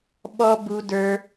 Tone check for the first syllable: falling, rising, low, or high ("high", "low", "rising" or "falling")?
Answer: high